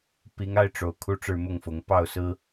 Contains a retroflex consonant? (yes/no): yes